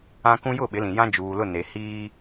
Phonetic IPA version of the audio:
ã˦kũ˦ jʊ˦˨ɓɪ˨˦lĩ˨jã˦ d͡ʒuː˨lʊ˦˨ne˨ hiː˦

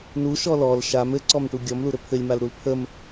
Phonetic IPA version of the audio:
nuʃɔ lɔl ʃam ɘǀɔmʈu ɡʲɔmluɾɘ pʰɘlʲmalɾul pʰəm

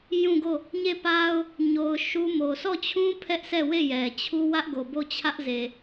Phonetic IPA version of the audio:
jũ˦˨ɡo˦˨ | ɲe˦˨pa˦ʊ̯ | ɲo˨ʊ̯ ʃu˦mo˨ sʰɔ˦˨t͡ɕʰũ˦ pʰɛ˦ʔsʰɛ˦˨we˦˨ jɛ˨ t͡ɕʰu˦wä˦ʔɡo˨ bo˦˨t͡ɕʰä˦ʔze˨

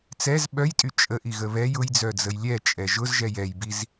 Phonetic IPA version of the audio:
t͡sɛz ɓœjtʼy t͡ʃʼəʔiɣə βɛj ʊjd͡zœd͡zəj lʲɛt͡ʃʼɛ ʒʊzʒɛj ɛjbiz

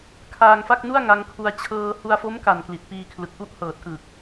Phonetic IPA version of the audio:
kʰaː˧ŋfa˥˩k̚nu˥˩a̯ ŋa˧ŋkʰu˧a̯ t͡ɕʰɤː˧ hu˧a̯fo˦˥mka˨˩n kli˨˩t̚piː˧kʰlɯ˨˩k̚ʔu˥˩ʔ hɤː˨˩t̚ʔɯ˨˩k̚

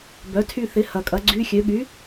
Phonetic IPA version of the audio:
bœ˨˥tʰy˦˨θɪ˨˥ hɐ˨kʼɐ˨˥ ɡ͡ǀy˧˥˧xʲø˨˥ ɠy˨˥

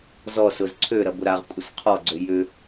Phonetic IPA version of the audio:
zɔsʊz ǀʰøɾɐbʊ ɾaʁkʷʼəs qʰɔɡ͡ǀø jʏ

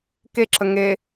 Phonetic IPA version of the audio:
keǁə ŋe

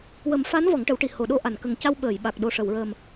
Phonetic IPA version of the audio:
wə˨˩˦mfa˧˥n vɔ˨˩˦ŋʈə˨˩˦wʈi˨˩ ho˨˩˨ɗo˧ʔa˨˩˨nkə˨˩ŋ ca˧wɓəː˨˩˨jɓa˨˩k̚ɗo˨˩ ʂə˨˩˨wɹəː˨˩m

